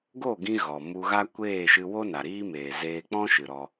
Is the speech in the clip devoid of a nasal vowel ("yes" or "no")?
no